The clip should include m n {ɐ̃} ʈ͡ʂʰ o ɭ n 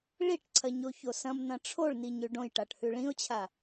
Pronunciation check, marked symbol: correct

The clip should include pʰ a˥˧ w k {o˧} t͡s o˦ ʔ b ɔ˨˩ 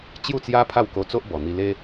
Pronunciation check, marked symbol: correct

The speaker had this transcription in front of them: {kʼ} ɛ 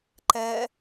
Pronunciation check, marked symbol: incorrect: ǃ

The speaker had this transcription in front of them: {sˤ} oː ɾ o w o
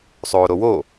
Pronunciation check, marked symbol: correct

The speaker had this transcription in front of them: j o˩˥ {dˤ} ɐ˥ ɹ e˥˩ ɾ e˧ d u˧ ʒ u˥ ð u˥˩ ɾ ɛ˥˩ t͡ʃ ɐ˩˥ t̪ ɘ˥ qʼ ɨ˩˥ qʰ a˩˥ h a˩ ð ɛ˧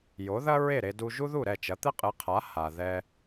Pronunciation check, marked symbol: incorrect: ð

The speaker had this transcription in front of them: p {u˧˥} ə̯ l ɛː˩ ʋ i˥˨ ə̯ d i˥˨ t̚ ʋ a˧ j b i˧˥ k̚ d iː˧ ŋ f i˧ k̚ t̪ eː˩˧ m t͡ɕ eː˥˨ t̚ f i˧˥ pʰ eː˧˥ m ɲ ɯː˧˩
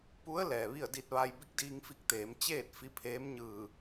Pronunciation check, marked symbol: correct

